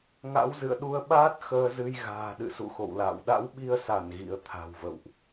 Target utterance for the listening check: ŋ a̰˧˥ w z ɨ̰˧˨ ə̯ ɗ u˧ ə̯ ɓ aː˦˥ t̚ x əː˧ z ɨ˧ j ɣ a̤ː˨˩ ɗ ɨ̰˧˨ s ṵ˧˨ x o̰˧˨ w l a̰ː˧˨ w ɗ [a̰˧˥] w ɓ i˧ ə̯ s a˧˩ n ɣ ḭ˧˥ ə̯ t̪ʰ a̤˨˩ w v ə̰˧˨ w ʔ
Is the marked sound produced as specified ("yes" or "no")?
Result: yes